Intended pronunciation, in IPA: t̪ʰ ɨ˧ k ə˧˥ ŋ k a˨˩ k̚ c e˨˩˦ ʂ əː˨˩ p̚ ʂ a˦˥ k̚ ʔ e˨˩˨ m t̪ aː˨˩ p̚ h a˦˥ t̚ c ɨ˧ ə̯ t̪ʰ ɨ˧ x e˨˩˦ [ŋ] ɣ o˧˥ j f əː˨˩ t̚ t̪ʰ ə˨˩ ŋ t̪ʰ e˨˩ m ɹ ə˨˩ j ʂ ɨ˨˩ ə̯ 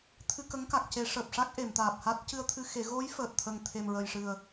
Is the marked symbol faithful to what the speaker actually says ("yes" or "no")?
no